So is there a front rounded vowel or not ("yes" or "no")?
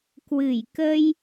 no